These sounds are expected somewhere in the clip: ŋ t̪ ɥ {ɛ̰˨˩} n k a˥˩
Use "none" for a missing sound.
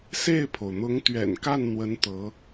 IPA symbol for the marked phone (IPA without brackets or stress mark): ɛ̰˨˩